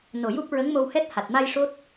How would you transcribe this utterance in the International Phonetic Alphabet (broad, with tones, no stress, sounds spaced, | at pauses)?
n o˨˩ j u˦˥ p̚ ɹ ə˧˥ ŋ m o˧ w h ɛ˦˥ t̚ h a˨˩ t̚ m a˧ j ʂ o˦˥ t̚